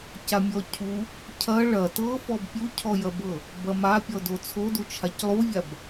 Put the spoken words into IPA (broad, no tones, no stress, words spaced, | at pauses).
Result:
camʲɔcʰu | cʰɐ ɭɐ tɤfɔb pʲucʰɔjɐbɤ | bɐmapʲɔ dot͡sʰodu t͡ʃʰaclˠuvʲab